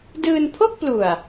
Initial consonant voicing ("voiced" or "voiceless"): voiced